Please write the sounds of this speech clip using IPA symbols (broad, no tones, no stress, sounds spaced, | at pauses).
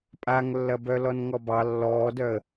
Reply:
pʼ a ŋ lː ɐ b œ l ɔ n ŋ ɔ b ɑ lː ɔː d œ ə̯